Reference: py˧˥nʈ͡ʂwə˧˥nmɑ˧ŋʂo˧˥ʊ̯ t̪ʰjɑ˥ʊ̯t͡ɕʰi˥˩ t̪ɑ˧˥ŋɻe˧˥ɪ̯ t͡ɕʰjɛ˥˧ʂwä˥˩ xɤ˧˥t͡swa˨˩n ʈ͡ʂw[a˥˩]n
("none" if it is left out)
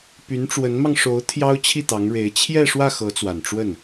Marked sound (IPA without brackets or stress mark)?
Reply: ə˥˩